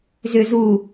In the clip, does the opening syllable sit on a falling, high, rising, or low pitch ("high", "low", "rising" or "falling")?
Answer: low